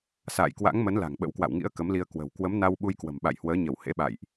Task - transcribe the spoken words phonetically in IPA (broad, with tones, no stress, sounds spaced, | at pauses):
s a̰ː˧˨ j k w a̰˧˥ ŋ m ə˨˦ n l a̤˨˩ ŋ ɓ ə̰˧˥ w k w a̰˧˨ w ŋ ḭ˧˥ ə̯ k ə˨˦ m l i˧ ə̯ k w ə̤˨˩ w k w ə˨˦ m n a˧ w ɓ u˧ j k w ə̤˨˩ m ɓ a̰˧˨ j h w əː˨˦ ɲ ə˧˩ w h ḛ˧˥ ɓ a̰˧˨ j ʔ